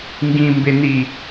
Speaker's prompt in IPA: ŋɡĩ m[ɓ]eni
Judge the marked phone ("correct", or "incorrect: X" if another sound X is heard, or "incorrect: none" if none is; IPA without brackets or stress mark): incorrect: b